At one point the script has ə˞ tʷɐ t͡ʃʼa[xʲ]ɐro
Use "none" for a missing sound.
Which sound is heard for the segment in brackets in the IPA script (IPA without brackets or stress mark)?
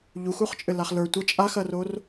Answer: x